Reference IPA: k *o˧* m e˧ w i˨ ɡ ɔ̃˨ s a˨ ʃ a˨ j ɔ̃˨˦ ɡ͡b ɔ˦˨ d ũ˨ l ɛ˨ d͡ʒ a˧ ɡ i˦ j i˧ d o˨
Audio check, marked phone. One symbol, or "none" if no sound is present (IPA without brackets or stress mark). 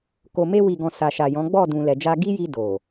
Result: o˨